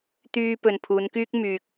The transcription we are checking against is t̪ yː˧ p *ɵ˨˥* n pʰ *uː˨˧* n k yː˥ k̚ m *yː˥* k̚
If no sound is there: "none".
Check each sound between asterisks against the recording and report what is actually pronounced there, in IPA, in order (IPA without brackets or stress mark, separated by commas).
ɵ˨, uː˨˧, yː˧